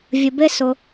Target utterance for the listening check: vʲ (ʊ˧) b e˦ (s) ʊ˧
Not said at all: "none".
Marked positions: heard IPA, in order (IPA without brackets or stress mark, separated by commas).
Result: ə˧, s